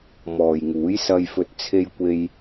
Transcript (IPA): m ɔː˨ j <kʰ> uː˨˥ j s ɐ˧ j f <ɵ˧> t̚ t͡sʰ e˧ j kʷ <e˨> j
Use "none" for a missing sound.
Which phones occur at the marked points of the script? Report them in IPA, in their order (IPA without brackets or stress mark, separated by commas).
ŋ, ɵ˧, e˧